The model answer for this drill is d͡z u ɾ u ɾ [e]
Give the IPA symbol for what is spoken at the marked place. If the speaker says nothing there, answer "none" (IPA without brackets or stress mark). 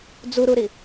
i